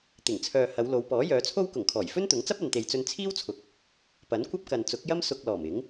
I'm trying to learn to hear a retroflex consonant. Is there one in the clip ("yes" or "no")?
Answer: no